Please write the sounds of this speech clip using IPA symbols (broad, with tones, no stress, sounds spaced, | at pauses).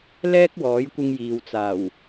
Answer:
l ɛː˥ k̚ w ɔː˨˥ j kʷ ɪ˧ ŋ j iː˨ w t͡s aː˨˩ w